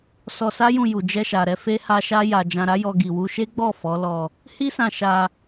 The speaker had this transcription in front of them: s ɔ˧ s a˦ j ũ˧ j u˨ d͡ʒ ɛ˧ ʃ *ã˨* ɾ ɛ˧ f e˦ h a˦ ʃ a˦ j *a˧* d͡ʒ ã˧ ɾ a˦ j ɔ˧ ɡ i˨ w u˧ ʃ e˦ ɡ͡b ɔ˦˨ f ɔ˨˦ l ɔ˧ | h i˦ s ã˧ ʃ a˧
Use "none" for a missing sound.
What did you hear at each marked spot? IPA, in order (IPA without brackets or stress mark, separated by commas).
a˨, a˧